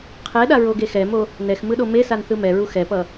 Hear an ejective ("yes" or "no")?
no